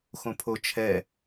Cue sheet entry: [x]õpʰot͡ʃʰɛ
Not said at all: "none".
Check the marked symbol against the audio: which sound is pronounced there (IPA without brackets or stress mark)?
x